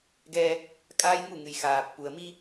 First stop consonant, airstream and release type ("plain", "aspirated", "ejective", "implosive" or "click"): plain